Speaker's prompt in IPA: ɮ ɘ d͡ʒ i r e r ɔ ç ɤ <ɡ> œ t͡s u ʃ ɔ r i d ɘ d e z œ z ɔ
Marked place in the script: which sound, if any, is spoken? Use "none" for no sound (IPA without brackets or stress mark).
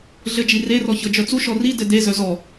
d͡ʒ